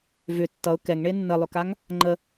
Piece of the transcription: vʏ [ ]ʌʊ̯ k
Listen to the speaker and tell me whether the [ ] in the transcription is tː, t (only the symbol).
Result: tː